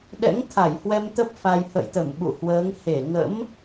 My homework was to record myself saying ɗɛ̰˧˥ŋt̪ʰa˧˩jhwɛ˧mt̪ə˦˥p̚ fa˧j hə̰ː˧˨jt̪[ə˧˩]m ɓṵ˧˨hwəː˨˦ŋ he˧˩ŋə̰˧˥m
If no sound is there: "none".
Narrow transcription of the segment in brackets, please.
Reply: ə˧˩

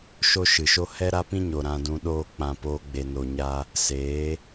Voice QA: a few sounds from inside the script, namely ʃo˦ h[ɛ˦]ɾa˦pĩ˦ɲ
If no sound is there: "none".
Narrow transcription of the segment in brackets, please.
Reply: ɛ˦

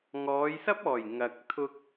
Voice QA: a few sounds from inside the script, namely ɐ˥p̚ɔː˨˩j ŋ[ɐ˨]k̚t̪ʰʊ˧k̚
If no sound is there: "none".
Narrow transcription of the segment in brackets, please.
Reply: ɐ˨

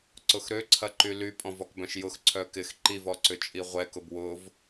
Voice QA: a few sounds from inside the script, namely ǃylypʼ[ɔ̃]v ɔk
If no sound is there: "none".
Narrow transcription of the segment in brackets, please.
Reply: ɔ̃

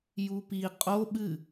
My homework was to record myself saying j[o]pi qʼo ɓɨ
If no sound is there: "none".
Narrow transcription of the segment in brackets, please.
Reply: u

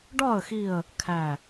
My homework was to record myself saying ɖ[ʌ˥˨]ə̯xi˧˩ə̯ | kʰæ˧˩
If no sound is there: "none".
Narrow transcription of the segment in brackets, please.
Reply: ɒ˥˨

